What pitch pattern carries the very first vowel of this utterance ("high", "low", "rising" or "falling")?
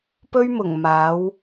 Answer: high